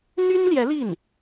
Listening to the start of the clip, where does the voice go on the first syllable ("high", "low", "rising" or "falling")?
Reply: high